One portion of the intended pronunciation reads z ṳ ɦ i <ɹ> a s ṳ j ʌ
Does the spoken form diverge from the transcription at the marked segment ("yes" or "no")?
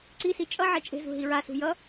no